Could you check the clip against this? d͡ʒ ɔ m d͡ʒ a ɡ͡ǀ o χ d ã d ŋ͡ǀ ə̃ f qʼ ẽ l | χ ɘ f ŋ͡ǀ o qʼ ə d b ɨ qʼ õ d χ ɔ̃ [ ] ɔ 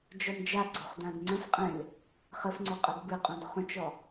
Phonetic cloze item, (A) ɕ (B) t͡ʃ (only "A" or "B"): B